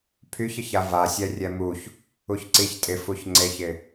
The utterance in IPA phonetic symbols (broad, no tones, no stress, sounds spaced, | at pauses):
pʰ y ç ɪ ç a v a sʲ ɛ rʲ ɛ m u ç | u ç ǀ i ç tʼ ɪ f u ç ŋ͡ǀ e ç ɪ